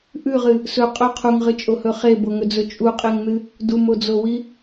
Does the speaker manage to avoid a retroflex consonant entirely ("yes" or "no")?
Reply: yes